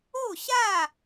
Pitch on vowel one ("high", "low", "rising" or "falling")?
falling